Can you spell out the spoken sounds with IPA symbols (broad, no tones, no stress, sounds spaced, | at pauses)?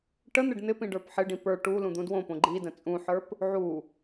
ʈ ə n̪ ɪ ɖ n̪ ɪ p ĩ ɖ ə˞ p ħ ɪ ɖ ĩ p ə˞ ʈ u l ũ d̪ ũ d w õ p õ ɡ͡ǃ i d ə̃ t͡sʼ ũ ħ ə˞ p | ʕ u